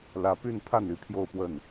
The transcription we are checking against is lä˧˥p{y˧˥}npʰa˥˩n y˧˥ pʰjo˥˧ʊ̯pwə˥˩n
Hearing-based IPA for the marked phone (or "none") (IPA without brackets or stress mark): y˥˧